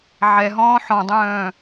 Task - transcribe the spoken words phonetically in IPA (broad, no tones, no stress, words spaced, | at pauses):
ʕɛɦɔ̃ː ħɔ̃dˤœ̃ː